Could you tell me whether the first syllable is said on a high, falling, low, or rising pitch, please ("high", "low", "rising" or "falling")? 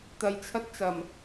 low